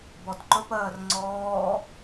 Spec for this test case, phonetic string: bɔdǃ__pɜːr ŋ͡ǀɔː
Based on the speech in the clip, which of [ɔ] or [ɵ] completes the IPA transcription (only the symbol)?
ɵ